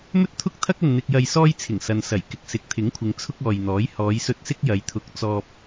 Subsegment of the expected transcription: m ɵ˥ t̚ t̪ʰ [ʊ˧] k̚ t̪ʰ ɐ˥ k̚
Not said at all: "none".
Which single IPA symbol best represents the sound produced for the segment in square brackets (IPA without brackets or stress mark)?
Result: ʊ˥